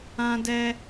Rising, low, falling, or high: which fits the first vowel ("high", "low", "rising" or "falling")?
high